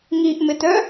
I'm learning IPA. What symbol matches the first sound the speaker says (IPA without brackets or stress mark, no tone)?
ŋ